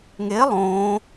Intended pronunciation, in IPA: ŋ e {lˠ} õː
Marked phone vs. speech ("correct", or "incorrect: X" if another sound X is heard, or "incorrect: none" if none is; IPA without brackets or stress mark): correct